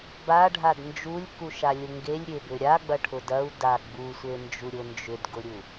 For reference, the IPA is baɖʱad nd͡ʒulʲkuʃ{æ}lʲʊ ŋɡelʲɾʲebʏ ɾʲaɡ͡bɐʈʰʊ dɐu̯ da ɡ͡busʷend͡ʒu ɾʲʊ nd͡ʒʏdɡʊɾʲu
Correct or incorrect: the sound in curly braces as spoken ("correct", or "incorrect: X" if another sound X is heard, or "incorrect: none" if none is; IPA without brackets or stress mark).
incorrect: a